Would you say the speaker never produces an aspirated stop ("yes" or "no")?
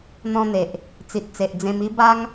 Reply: yes